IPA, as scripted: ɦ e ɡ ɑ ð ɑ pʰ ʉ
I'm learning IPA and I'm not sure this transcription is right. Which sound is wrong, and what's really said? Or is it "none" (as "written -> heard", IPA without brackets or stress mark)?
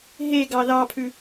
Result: none